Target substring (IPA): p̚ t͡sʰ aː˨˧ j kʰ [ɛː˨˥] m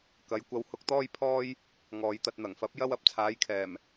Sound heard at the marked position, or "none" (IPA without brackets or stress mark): ɛː˨˩